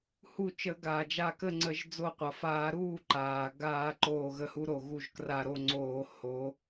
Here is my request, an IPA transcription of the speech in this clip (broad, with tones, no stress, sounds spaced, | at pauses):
h u˧˩ t͡ʃ ə˧˩˧ ɡ aː˩ d͡ʒ a˧˩ k ə˥˩ ŋ͡ǀ ə˧˩˧ ʒ d͡z o˧˩ qʷ a˩ f aː˧˩˧ ɾ uː˥˩ ǃ aː˩ ɡ aː˧˩˧ ǃ oː˧˩ ɣ ə˧˩ h u˨˦ ɾ o˩ ɣ u˥˩ ʒ k r a˧˩ ɾ o˥˩ ŋ͡ǀ oː˧˩˧ h o˨˦